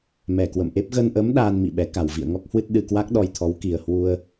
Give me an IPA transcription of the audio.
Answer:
mɛ˨˩ kwə̰˧˨mʔe˦˥p̚ ɣə˧nʔə˨˦m ɗaː˧n mḭ˧˨ɓɛ˨˦ ka˧˩wvḭ˧˨ə̯ŋɔ˦˥k̚hwɨ˦˥t̚ ɗɨ˧kwa˦˥k̚ɗɔ˧jt̪ʰɔ˨˦w ki˨˩ə̯hwu˧ə̯

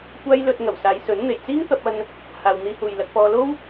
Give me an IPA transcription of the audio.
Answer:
kʷaː˧jlɵ˨t̚ ŋɐ˨˩wsaː˨˧jsɵ˨˥n n̪e˨˩jt͡siː˥ŋt̪ɐ˧p̚ɐ˧n | haː˨wn̪iː˧huː˨j lɐ˧k̚pɔː˧ lo˥w

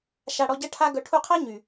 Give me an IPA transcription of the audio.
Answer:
ʃa˨ ɽɔ˧ɟɐ˦ʈʰa˦ɡœ˧ ʈʰu˧qʰa˦ ɲy˨

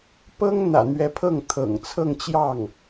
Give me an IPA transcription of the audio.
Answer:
pɤ˥ŋn̪ä̰˨˩ n̪ɥɛ˧˥pʰɤ˥˩ŋt̪ʰɤ̰˨˩ŋ t͡sʰɤ˥˧ŋt͡ɕjɑ˥˩ŋ

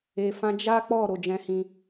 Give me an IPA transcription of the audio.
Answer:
e˧fã˦ d͡ʒa˦k͡pɔ˦˨ ɾo˨˦d͡ʒɛ̃˦hĩ˦

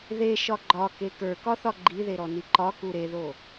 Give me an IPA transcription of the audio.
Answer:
ðeʃɒ ɡ͡ǃɒke kə˞kɒθɒ ɡ͡ǃiðeɾɔni ǃɒku ɾeðo

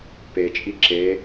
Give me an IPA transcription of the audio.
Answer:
pet͡ʃʼi ǁe

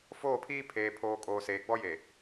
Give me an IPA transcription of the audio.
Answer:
foː˦˨pʰiː˦ pʰeː˨pʰoː˨ kʼoː˨seː˨ɡ͡bɔ˦je˨

